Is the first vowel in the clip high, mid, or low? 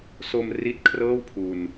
mid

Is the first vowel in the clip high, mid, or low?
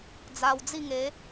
low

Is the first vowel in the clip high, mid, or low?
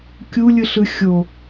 high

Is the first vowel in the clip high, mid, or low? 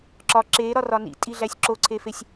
low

